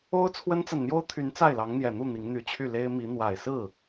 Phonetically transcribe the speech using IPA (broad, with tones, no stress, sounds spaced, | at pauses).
o˥ ʊ̯ t͡sʰ w ə˥ n t͡s a˨ n n̪ j o˥ ʊ̯ t̪ʰ y˧˥ n t͡s a˥˩ ɪ̯ l ɑ˧˥ ŋ n̪ j ɛ˨˩ n̪ u˥˩ n̪ i˧˥ ŋ n̪ y˧˥ t͡ɕʰ y˥˩ l e˥ ɪ̯ m i˧˥ n̪ w a˨˩ ɪ̯ s ɹ̩˥˩